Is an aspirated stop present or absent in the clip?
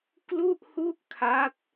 present